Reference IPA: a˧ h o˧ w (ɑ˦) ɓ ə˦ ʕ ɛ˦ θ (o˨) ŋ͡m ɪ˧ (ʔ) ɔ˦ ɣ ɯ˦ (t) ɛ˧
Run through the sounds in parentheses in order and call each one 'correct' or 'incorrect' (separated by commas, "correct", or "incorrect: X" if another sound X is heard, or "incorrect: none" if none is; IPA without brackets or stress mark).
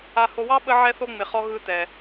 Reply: correct, incorrect: o˦, incorrect: χ, correct